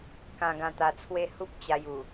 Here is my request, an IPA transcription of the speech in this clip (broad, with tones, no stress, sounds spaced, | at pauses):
k ã˧ ɡ ã˧ t̪ a˧ t͡sʰ w e˦ h u˦ p̚ t͡ɕ a˧ j u˨˩